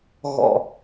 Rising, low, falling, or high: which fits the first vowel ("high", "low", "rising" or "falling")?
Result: low